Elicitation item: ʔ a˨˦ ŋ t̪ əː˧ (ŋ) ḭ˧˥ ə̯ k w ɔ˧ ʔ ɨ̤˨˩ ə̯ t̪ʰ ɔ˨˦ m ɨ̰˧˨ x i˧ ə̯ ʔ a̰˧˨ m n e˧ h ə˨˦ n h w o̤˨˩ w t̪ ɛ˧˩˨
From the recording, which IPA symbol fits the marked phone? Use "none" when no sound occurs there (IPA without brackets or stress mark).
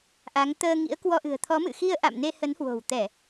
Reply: ŋ